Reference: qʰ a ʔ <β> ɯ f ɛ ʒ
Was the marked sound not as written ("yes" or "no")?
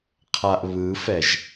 no